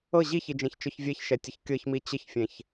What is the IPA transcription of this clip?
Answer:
ɤ ʑ i ç i d͡ʒ ɛ̃ ç t͡ʃ ɔ ç vʲ ɛ ç ʃ ɛ tʲ ə ç kʲ ɤ ç m i t͡ɕ ə ç fʲ ɛ̃ ç

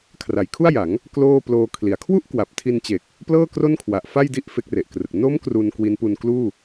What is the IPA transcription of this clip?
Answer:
kʰ r a˩˦ j kʰ u˥˩ a̯ j a˩˦ ŋ | k l oː˥˩ p l oː˧ kʰ l i˩˦ a̯ kʰ w u˥˩ ʔ k w a˨˩ p̚ tʰ i˧ n t͡ɕ e˨˩ k̚ | p l ɤː˥˩ k r o˥˩ n kʰ w a˨˩ ʔ f a˥˩ j d i˥˩ ʔ f e˦˥ k̚ r e˨˩ ʔ k r ɯ˨˩ k̚ n o˦˥ m k r u˧ n k w i˦˥ n p u˧ n k l uː˥˩

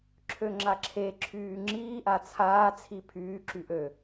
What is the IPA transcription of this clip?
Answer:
ǁʰ ø ŋ͡ǁ a ǁʰ e ǁʰ yː ŋ͡ǁ iː ʔ a t͡sʰ aː t͡sʰ i pʰ yː ǁ y ʔ ø

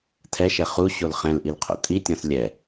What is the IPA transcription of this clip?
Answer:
tʰ ɛ ʃ ɛ χ u ɕ o l χ ɛ̃ l ʔ i l qʰ o̰ tʼ i tʲ ɔ̃ s lʲ ɛ

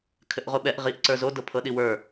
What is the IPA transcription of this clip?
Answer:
kʰ ɘ ʔ ʁ o ɓ ɛ ʔ ʁ i ʔ ǀ ə˞ z o d ɤ pʰ ɤ ɗ i w ə˞

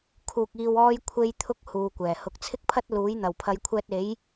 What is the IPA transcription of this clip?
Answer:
kʰ uː˨ k̚ iː˨ w ɔː˧ j kʷʰ e˥ j t̪ʰ ʊ˥ k̚ h uː˨˧ kʷ ɛː˨˩ h ʊ˨ k̚ t͡sʰ ɪ˥ k̚ pʰ ɐ˥ t̚ l uː˨˥ j n̪ ɐ˨˩ w pʰ ɐ˨˧ j kʷʰ ɛː˧ t̚ e˨˥ j

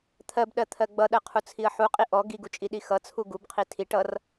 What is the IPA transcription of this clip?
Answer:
t̪ʰ ɜ b ɗ ɜ t̪ʰ ɜ ɡ͡b ʌ ɗ ɜ qʰ u t͡sʰ i ə̯ ħ u qʼ i ʔ ɔ ɡ i ɡ u t͡ʃʼ i ɗ i x ʌ t͡sʰ u ɡ u b qʰ i tʰ i ʈ ʌ r

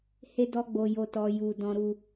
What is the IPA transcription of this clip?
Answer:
h e˧ d ɔ˧ ɡ͡b o˨ j o˨ t ɔ˨ j u˨ d ɔ̃˨ ɾ u˨

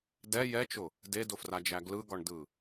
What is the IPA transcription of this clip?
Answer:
d ɛ j ɛ t͡ʃ ʊ | d e d ʊ f r a d͡ʒ æ ɡ l ɯ ɡ ɒ ɳ d ɯ

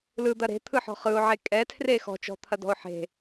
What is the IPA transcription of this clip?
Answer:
l ɯ d̪ ɐ ɾ e̤ t̪ʰ ɯ ħ ɔ̤ χ ɯ ʊ̯ ʕ e kʼ ɛ tʰ r e x ɔ̤ t͡ʃ ɔ̤ t̪ʰ ɐ d ɔ̤ ʊ̯ ħ e̤

